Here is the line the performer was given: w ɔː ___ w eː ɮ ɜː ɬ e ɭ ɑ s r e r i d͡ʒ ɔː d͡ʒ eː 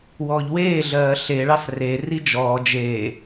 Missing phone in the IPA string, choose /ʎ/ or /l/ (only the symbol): ʎ